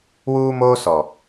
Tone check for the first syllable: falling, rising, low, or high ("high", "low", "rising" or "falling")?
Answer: high